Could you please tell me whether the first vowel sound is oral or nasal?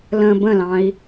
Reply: nasal